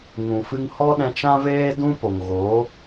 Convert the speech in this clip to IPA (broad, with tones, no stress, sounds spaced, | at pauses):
ŋ ũ˨ f ɨ˧ ŋ h ɔ˦ ɗ ɛ̃˧ t͡ʃ ã˦ v eː˦ d ũ˦ p o˨ ŋ ɣ o˨˦